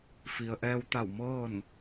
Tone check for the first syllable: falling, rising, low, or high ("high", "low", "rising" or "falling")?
low